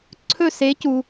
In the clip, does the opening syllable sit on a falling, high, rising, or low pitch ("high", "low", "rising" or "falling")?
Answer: falling